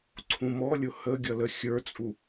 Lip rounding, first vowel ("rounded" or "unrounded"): rounded